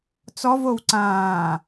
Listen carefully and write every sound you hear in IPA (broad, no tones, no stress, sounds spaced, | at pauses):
t͡s ɔ v o w ǀ ãː